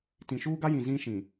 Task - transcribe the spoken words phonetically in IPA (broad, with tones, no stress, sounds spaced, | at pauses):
t ĩ˨ ʃ uː˦ ɡ a˦ j ĩ˨ z ĩ˦ ʃ ĩ˨